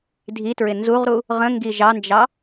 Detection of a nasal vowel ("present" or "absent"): present